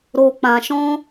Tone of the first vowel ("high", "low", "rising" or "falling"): low